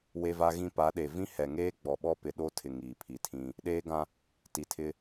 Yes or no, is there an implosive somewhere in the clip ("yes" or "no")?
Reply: yes